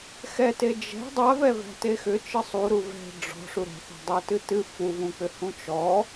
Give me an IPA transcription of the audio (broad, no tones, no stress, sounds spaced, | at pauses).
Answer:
x ɛ t e d͡ʒ ɛ̤ dˤ a v ɛ v æ̤ t e x ʏ t͡ʃ ɨ sˤ u ɾ u v ɛ̤ ɖ͡ʐ ɔ̤ ʂ u ɾ ɛ̤ θ ɔ̤ dˤ u t ɨ t ɨ f u v ũ k͡p ʏ h ũ t͡ʃ ɔ